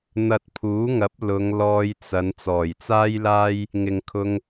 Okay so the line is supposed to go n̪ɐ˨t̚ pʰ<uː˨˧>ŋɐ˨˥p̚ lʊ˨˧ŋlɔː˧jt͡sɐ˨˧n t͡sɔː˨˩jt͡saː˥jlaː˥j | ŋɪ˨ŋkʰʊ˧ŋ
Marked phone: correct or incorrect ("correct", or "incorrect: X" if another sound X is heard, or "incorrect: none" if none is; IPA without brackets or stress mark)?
incorrect: uː˨˥